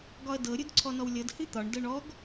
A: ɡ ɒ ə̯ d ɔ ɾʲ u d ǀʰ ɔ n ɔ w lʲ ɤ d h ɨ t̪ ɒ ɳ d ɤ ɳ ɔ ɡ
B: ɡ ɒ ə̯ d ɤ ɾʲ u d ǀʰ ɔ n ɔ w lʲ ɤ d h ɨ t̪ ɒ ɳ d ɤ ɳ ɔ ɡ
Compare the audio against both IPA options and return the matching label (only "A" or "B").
B